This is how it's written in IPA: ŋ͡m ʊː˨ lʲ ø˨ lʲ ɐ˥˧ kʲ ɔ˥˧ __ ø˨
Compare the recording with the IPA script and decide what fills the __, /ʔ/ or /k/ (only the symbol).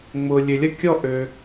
ʔ